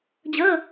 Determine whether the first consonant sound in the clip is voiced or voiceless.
voiced